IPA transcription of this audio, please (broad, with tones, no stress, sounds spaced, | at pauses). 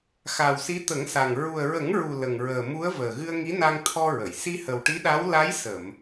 x a˨˩ w s i˧˥ t̪ ə˨˩˦ ŋ s a˨˩ ŋ ɹ u˨˩ ə̯ ɹ ə˨˩˦ ŋ ɹ u˨˩ l ə˨˩ ŋ ɹ əː˨˩ m u˧˥ ə̯ v əː˨˩ ɣ ɨ˧ ə̯ ŋ i˧˥ n a˧ ŋ t̪ʰ ɔ˧ ɹ ə˨˩˨ j s i˧ h ə˨˩ w ʈ i˧˥ ɗ a˧˥ w l a˧˥ j s ə˨˩˨ m